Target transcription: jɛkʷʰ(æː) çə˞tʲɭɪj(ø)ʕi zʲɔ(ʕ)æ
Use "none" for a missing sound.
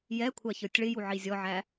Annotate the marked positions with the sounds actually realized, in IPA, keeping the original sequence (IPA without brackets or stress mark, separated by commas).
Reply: æ, u, ʕ